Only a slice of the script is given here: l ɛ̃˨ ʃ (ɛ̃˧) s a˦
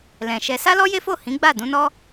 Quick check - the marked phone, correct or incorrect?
incorrect